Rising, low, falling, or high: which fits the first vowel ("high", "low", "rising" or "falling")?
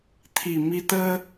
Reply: low